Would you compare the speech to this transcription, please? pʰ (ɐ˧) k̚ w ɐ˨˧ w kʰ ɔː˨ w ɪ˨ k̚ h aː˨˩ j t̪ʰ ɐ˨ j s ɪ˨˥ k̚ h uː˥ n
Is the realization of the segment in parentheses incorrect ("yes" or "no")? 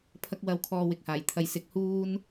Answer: no